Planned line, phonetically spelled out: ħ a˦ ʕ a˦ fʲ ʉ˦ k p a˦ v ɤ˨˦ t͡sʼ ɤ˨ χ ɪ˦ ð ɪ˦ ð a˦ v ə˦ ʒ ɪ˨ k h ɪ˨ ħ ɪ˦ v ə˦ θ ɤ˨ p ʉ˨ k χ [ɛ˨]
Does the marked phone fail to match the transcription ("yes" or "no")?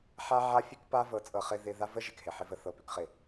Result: yes